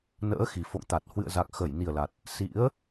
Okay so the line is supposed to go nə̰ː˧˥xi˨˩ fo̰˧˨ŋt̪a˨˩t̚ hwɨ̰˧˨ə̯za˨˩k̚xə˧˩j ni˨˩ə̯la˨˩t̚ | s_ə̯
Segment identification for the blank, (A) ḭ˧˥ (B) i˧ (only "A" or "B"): A